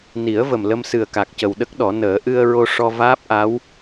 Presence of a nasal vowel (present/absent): absent